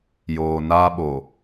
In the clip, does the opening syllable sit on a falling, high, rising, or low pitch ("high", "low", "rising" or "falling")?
low